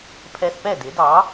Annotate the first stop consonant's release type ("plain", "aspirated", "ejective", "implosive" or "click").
aspirated